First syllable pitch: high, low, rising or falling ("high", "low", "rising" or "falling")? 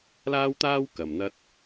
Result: high